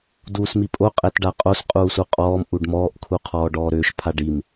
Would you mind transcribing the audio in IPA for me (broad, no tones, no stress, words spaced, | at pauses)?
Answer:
duːsmipʼo qʼɛtɖaqʼos qʼuːsuqʼɔːm ʔuɖmɔːʔ kʰuqʰɔːɖɔːɾʏːʃ pʰaɖim